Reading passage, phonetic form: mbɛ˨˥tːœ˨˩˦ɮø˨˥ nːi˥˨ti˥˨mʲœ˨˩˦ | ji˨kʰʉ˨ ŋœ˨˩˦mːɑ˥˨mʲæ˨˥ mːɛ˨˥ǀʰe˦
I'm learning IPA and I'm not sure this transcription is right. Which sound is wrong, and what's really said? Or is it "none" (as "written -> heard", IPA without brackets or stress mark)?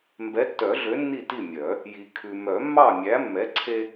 ŋ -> m